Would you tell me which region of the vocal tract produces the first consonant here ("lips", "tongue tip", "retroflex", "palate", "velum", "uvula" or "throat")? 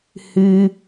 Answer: throat